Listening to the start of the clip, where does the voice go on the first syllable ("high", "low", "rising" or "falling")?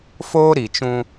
high